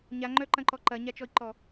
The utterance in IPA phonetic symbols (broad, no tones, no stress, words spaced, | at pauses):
ɲaŋ͡ǃœǃɐ̃ǃɔ ǃɐɲat͡ʃɔi̯ǃɔ